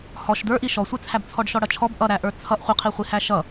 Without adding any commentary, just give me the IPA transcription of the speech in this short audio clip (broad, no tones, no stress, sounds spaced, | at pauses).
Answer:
h ɔ ʃ d ə˞ ʔ i ʃ ɔ sʷ ɪ t͡sʰ æ b t͡sʰ ɔ ɖ ʃ ɔ ɽ ʌ t͡ʃʰ ɔ b ʔ ʌ ɾ æ ʔ ə˞ t͡sʰ ʌ ʔ χʷ ɪ qʰ i χʷ i h æ ʃ ʌ